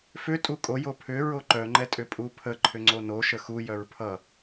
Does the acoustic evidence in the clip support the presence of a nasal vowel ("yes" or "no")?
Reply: no